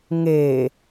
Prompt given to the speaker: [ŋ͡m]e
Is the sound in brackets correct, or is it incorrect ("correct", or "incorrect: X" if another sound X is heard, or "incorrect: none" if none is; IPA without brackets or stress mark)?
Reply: incorrect: ŋ